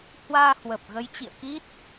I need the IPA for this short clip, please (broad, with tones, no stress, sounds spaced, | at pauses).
h w aː˧ h w ə˨˩ p̚ ɣ ə˨˦ j t͡ɕ ḭ˧˨ ə̯ k i˦˥ t̚